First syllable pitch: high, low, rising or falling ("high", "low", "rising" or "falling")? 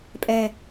low